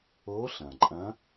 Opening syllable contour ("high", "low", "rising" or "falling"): rising